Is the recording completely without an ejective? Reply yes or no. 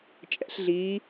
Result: no